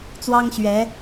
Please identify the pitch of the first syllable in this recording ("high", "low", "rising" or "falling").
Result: high